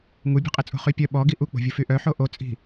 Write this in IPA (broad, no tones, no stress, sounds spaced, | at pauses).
ŋ u bʲ o̤ qʼ i t͡sʼ o̤ χ y pʲ œ ɓ ɔ ɡ i ʔ u k͡p o̤ vʲ u f y ʔ œ ħ o ʔ o t͡sʼ i̤